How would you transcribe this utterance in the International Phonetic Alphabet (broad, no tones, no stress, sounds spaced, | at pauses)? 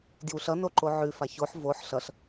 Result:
d j u ɬ ʌ n o ǃ o ʕ ʉ f a ç o ħ v o ħ ɬ ʌ ɬ